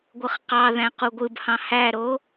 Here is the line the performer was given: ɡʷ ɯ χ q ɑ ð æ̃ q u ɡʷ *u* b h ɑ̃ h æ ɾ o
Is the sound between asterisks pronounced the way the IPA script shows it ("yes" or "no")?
no